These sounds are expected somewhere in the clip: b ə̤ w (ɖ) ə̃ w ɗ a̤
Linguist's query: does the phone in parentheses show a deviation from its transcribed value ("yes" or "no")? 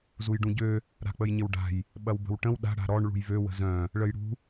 yes